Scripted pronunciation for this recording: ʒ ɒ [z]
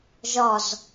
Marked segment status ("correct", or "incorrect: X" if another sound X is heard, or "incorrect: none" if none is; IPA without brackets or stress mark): correct